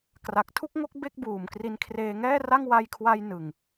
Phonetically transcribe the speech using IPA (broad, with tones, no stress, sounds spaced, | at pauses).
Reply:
k r a˨˩ k̚ tʰ u˥˩ k̚ ŋ o˥˩ k̚ b e˥˩ k̚ b uː˨˩ m k r i˧ n kʰ r eː˧ ŋ ɛː˥˩ r a˥˩ ŋ w a˧ j kʰ w a˧ j n ɯ˨˩ ŋ